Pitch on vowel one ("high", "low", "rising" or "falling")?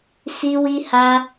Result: high